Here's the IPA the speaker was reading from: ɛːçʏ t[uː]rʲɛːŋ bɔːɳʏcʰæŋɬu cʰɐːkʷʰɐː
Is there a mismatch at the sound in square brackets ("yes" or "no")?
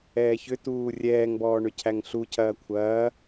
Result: no